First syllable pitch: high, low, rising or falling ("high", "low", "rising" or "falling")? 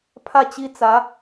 falling